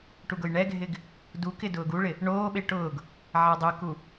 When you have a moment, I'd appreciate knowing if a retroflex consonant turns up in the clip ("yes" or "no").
yes